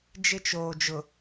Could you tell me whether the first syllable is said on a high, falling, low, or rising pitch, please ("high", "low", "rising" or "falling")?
high